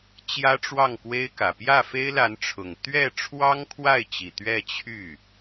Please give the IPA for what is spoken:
t͡ɕjä˥ʈ͡ʂwɑ˥˩ŋkwe˥ɪ̯kä˨˩ pjä˥˩fe˥ɪ̯la˧˥nʈ͡ʂʰʊ˨˩ŋ t̪ɥɛ˥˩ ʈ͡ʂʰwɑ˥ŋkʰwa˥˩ɪ̯t͡ɕi˨˩ t̪ɥɛ˥˧t͡ɕʰy˥˩

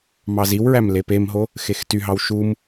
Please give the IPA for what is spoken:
mɑziwɹæm lepemɦo | xextyɦɑw ʃum

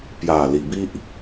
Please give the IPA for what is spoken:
pja˨˩ li˨˩bi˦ʔ

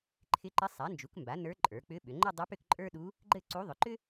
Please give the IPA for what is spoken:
ǃʰɪ˧˥ǃɪ˧˥sˤa˩˥ nd͡ʒu˩˥kmba˩˥nə˞˧˥ ǃʼə˞˩˧k͡pʏ˧˥ɓʏ˩˧ ŋ͡ǃɘ˥˧dˤɪ˧˥ pʏ˥˧kǃʼə˞˥ɗu˧˥ | ɡ͡ǃɘ˥˧ǀu˧˥ ðˤʏ˩˧ǃʏ˥

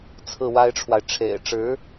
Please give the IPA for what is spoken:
t͡sʰɹ̩˥˩wa˥ɪ̯ʈ͡ʂʰwa˨ɪ̯ ʈ͡ʂʰḛ˨˩ɪ̯ʈ͡ʂɻ̩˧˥

